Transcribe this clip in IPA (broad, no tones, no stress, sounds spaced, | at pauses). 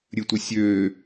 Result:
ɾʲ ɨ tʷ ə sʲ øː